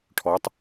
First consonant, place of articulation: retroflex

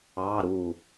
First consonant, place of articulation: alveolar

